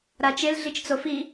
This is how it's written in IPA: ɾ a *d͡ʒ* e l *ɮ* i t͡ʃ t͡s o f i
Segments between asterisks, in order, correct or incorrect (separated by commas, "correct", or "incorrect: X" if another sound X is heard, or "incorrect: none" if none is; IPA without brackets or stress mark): incorrect: t͡ʃ, correct